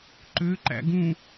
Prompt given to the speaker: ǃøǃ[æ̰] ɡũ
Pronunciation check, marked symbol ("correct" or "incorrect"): correct